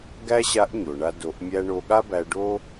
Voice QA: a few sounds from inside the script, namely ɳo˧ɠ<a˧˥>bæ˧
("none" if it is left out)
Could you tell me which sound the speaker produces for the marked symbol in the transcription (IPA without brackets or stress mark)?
a˥